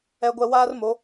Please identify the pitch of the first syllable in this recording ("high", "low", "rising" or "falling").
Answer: low